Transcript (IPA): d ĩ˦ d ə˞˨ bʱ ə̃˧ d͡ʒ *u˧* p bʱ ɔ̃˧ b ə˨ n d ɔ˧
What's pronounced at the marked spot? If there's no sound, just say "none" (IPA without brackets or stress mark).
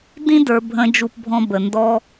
u˧